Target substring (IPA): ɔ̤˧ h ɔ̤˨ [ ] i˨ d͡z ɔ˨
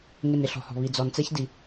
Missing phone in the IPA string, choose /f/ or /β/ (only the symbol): β